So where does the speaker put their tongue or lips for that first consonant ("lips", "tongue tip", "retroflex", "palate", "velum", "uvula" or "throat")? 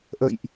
throat